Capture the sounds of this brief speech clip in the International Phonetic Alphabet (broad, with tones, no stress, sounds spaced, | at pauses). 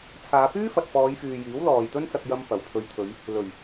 t͡sʰ aː˨˧ p yː˥ f ɐ˨ t̚ f ɔː˨˧ j f yː˨ j iː˨˥ w l ɔː˨ j t̪ ɵ˥ n t͡s ɐ˧ k̚ j ɐ˧ m p ɐ˨˩ w pʰ ɵ˨ ɥ t̪ʰ ɵ˨˧ ɥ | l ɵ˨˩ ɥ